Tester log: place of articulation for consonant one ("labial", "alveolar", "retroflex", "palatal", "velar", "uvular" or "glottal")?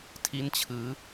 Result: alveolar